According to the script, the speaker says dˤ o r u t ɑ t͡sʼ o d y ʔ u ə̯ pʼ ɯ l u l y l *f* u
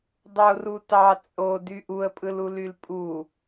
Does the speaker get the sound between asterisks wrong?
yes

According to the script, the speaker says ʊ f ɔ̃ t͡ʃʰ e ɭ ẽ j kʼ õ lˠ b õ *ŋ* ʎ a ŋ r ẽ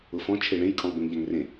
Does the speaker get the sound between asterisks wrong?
no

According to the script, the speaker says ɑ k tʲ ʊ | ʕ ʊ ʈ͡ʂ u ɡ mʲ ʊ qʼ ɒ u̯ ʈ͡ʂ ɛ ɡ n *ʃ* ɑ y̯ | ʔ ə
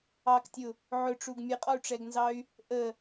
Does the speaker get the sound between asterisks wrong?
yes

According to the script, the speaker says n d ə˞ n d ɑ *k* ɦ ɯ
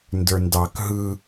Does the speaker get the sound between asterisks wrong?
no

